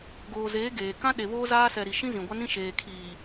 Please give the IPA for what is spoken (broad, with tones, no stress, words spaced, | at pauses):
ɡoː˨zeː˨˦ ɡeː˨ kã˦ ɗe˨βoː˦ zaː˦sɛ˨ ɾi˨ ʃĩ˦ zĩ˨ɡʷa˦nĩ˦ ʃeː˨kʰiː˨